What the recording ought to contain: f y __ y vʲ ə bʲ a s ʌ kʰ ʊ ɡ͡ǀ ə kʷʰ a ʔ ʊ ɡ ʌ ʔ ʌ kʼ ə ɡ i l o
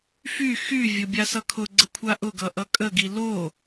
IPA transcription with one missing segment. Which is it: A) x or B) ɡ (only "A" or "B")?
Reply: A